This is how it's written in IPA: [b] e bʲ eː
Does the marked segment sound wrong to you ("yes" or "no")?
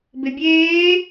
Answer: no